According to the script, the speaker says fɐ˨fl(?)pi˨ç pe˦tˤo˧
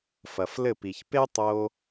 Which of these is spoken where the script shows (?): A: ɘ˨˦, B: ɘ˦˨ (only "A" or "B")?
B